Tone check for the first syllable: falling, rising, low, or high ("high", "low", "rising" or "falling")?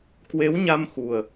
rising